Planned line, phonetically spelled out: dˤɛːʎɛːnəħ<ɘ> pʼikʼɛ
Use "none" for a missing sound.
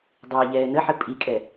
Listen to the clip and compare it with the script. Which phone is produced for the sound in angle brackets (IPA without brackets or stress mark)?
ɘ